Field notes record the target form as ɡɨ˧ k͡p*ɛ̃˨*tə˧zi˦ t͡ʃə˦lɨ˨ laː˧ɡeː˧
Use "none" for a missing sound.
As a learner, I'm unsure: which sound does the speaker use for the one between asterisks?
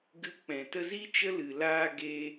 ɛ̃˨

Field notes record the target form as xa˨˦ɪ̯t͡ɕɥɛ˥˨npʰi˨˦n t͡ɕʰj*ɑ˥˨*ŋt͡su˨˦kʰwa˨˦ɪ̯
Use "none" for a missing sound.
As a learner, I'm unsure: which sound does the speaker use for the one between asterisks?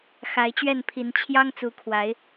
ɑ˦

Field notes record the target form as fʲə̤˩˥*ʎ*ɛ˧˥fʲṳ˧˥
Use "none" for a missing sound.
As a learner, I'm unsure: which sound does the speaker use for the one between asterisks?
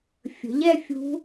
ʎ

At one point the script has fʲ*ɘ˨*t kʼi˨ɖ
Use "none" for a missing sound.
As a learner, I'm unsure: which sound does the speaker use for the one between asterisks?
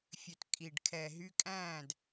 ø˨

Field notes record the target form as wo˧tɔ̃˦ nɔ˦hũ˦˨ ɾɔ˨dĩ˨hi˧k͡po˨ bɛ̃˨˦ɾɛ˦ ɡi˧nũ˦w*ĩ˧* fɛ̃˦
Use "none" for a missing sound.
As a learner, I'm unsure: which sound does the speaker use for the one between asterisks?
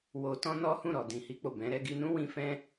ĩ˧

